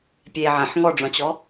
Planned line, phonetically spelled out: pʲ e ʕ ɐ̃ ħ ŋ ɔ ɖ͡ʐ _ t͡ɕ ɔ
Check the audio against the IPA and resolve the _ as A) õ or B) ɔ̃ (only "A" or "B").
B